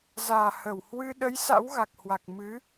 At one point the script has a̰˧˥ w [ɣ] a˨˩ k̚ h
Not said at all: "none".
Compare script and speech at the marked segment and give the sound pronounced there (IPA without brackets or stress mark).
ɣ